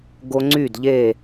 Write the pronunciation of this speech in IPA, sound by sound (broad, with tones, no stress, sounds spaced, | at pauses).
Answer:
ɡ o˦ ŋ͡ǀ y˥˨ d ʎ e˥˨